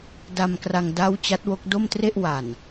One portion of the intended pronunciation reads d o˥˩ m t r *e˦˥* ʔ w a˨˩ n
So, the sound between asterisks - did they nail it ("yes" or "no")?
no